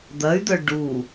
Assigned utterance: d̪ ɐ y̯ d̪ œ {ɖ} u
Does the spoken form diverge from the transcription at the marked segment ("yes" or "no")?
no